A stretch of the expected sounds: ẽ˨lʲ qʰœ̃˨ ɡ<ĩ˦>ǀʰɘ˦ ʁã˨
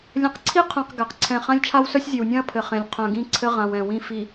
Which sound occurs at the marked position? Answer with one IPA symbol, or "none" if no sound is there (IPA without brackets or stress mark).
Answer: ĩ˦